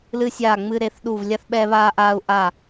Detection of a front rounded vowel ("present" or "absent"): absent